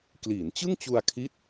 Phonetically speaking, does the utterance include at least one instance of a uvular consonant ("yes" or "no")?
no